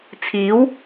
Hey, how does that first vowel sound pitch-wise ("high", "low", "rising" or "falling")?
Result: rising